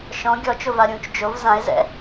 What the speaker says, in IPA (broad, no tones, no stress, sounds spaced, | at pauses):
ʃ ɔ̃ ɡʲ ɔ t͡ʃ o v a ɾʲ ũː t͡ʃ d͡ʒ o v z ã e̯ z ɛ̰